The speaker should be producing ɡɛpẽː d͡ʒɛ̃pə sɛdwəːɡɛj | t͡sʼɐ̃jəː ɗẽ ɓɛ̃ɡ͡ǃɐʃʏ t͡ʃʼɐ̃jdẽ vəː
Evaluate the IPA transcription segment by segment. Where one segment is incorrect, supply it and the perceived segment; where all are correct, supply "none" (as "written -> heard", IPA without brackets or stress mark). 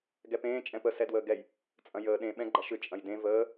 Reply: d͡ʒ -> t͡ʃʼ